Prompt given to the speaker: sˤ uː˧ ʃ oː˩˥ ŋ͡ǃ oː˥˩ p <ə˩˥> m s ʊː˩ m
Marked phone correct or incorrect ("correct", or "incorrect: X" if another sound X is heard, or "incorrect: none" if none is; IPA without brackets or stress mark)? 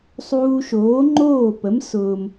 correct